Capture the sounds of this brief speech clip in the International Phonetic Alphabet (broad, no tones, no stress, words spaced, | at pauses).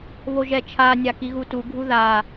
βoʒɛt͡ʃʰa nʲakiɣutu ɡʱuða